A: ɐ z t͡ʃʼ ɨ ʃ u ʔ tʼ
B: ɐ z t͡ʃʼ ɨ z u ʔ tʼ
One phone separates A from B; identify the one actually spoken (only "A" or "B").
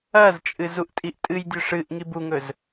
B